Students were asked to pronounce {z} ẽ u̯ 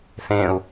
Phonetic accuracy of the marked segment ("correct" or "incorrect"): incorrect